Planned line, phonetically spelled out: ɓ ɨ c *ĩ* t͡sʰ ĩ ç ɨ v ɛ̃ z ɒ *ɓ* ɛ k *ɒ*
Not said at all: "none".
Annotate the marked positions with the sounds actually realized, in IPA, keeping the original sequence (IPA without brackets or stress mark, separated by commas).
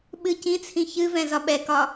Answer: ĩ, ɓ, ɒ